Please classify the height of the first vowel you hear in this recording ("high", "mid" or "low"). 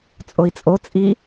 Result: mid